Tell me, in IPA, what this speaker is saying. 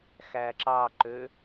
x æ ǁ ɑ ǃ ø

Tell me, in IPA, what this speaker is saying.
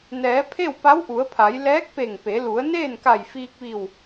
n ɛː˩˧ pʰ e˥˨ w p a˧˥ w ʔ u˩˧ ə̯ pʰ a˩˧ j l ɛː˧˥ k̚ p e˧˩ ŋ p e˩˧ l u˩˧ ə̯ n eː˥˨ n k a˧˩ j f iː˧ k̚ ʋ i˧˩ w

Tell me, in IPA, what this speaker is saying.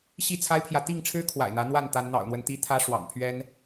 ɕ i˥˨ t͡sʰ a˦ ɪ̯ pʰ j ä˨ t̪ i˥˨ ŋ ʈ͡ʂʰ ɻ̩˦ kʰ w a̰˨˩ ɪ̯ n̪ ä˨˦ n̪ w a˥˨ n t̪ a˨˦ n n̪ ɑ̰˨˩ ʊ̯ n̪ w ə˦ n t̪ i˦ t̪ʰ ä˦ ʂ w ɑ̰˨˩ ŋ pʰ ɥ ɛ˦ n

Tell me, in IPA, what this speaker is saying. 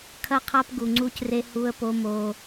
kʰ ɐ˦ qʰ a˦ p ɡ u˨ ŋ͡ǀ u˦ c r e˦ h u˦ ə̯ p o˦ m o˦

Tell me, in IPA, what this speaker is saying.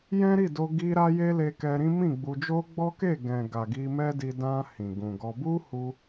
j ɛ̃˦ ɾ i˦˨ d o˧ ɡ i˧ ɾ a˧ j e˦ l e˧ k ɛ˧ ɾ ĩ˦ m ĩ˦˨ ɡ͡b u˧ d͡ʒ o˦ ɡ͡b ɔ˦ k e˦˨ ɡ ɛ̃˨ ɡ a˨ ɡ i˧ m ɛ˦ d i˧ d ã˧ h ĩ˨ ɡ ũ˨ ɡ ɔ˧ b u˦ h u˧

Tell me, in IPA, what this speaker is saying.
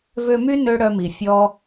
v ø˧ m y˦ n ø˦ ɽ œ˧ m i˨ fʲ ɔ˦

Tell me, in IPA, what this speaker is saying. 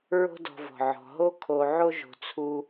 ɹ o̤˦ d ɔ̤˨ v ɔ̤˩ ʕ ɔ̤˩ ɦ o˦ kʰ o˨ ʕ o˦ ʒ o̤˨ t͡sʰ u˦

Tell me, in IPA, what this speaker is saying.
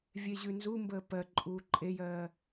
vʲ e ʑ ʉ n z u m b əː p ɜ ǃʼ uː ǃʼ e j ɜː

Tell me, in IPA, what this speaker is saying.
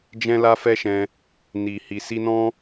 d͡ʒ ɛ̃˦ l a˦ f ɛ˦ ʃ ɛ̃˧ | n i˨ h i˨ s i˧ n ɔ̃˦

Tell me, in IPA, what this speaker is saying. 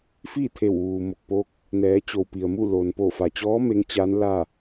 f iː˥˨ t̪ʰ e˧˩ w ʋ uː˩ m o˧˩ k̚ p o˧ k̚ | n ɛː˩˧ t͡ɕ o˩ w p i˩ ə̯ m u˥˨ l o˩ n p o˧˩ f a˩ t͡ɕ ɔː˧˥ m e˧˥ ŋ t͡ɕ a˧˥ n l a˥˨

